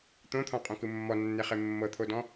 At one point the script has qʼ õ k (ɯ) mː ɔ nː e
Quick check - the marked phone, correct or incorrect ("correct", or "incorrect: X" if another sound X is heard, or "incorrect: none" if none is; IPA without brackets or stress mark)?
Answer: correct